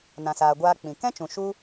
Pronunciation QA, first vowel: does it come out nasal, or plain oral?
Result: nasal